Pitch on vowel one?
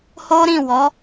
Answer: high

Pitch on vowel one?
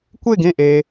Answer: falling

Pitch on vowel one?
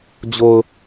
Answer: low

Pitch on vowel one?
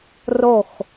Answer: falling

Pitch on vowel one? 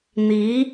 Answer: rising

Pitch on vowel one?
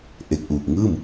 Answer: low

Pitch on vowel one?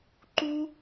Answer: high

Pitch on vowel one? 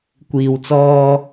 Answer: low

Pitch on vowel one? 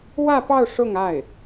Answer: falling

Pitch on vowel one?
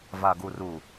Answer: low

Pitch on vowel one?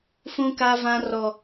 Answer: high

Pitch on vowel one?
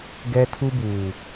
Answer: high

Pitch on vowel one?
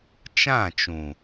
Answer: falling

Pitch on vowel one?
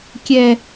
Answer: low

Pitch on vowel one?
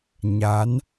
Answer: rising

